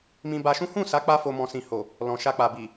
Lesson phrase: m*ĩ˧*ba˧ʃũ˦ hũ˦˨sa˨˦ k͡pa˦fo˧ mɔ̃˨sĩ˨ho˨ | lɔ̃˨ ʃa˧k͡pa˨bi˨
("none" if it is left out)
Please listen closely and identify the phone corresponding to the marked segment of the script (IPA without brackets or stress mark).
ĩ˧